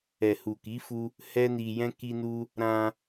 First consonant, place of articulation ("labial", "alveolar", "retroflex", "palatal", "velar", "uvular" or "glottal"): glottal